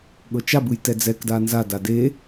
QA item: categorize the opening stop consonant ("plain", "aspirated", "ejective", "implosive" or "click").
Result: implosive